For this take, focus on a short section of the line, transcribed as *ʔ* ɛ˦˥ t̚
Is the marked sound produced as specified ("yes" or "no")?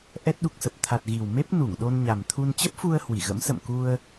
yes